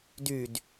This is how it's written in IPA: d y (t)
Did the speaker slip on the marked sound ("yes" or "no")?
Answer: yes